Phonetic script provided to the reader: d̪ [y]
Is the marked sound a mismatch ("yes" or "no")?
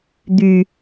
no